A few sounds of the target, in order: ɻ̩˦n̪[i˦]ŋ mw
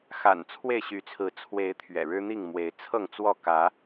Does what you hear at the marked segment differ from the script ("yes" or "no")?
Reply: yes